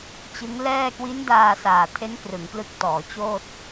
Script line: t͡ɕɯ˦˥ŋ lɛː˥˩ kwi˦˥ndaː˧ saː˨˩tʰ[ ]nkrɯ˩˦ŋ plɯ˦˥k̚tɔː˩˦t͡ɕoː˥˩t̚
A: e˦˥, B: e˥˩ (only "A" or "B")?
A